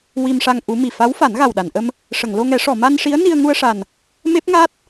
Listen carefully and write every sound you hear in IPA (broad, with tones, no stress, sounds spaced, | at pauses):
w i˧ m ʂ a˧ ŋ ʔ u˧˥ m i˨˩ f a˧˥ w f a˨˩˦ n ɣ a˨˩ w ɗ a˨˩˨ n ʔ ə˧ m | ʂ ə˨˩˨ ŋ l o˧ ŋ ɛ˨˩˦ ʂ ɔ˨˩˨ m a˧ n ʂ i˧˥ ə̯ n i˧ ə̯ ŋ u˧ ə̯ ʂ a˨˩ n | m e˦˥ p̚ ŋ a˦˥ t̚